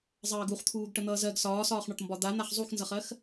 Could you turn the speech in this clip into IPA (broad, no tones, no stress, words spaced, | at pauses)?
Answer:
zˤɜːɡuχt̪ʰuːɡ ʈən̪ʌːzɜɡ sɒːsɒːχɳɒʈmbɒ d̪an̪aχ zˤuxnzʌχɜx